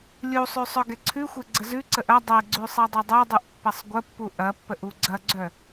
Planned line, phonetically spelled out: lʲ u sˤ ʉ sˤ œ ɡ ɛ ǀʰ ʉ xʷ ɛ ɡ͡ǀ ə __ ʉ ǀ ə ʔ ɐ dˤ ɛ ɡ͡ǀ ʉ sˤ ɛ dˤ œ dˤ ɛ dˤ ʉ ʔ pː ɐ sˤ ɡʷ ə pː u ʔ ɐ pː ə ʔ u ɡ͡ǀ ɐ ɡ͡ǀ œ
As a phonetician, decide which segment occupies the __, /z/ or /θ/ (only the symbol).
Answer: z